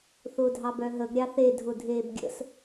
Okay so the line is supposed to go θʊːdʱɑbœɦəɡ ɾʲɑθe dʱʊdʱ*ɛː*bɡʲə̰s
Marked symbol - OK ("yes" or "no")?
no